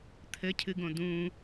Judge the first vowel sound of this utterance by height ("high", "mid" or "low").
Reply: mid